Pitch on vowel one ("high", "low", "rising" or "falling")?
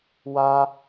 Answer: high